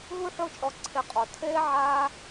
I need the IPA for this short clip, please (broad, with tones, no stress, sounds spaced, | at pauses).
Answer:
ɦ u˥ ħ o˦ t͡ʃʼ ɔ˨ ǀʰ e˨ qʼ ɔ˩ tʰ eː˥ ʕ aː˦